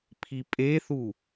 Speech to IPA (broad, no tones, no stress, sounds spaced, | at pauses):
pʰ i pʼ e θ u